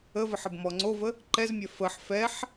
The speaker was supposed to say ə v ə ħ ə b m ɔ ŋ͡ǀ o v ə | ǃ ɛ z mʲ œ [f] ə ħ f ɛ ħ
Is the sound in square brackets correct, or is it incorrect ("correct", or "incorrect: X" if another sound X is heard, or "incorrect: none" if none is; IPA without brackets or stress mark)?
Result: correct